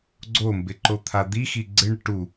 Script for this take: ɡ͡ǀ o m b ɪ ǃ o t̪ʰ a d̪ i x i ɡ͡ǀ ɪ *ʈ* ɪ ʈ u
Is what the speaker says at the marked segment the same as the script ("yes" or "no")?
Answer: no